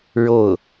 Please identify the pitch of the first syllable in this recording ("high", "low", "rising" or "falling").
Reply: falling